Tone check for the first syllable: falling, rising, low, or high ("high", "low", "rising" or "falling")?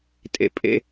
high